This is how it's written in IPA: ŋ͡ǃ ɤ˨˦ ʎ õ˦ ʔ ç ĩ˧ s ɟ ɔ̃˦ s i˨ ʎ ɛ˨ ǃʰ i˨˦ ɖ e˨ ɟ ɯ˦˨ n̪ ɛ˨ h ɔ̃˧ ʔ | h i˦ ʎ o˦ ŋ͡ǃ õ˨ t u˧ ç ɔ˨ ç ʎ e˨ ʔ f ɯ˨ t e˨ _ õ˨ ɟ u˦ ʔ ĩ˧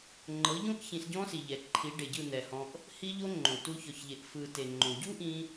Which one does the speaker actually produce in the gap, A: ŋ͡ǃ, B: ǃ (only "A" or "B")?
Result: A